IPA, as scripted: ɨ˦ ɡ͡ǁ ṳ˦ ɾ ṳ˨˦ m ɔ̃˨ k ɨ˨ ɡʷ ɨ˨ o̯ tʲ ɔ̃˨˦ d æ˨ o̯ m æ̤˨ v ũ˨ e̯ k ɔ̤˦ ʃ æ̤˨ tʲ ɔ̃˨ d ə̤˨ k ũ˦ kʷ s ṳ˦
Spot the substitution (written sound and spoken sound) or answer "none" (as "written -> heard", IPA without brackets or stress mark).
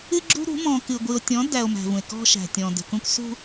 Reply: none